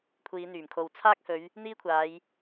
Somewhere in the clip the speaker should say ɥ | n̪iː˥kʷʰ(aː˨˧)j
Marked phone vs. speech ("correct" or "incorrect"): correct